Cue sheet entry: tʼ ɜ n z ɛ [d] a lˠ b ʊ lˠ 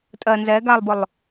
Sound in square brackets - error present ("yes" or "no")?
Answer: yes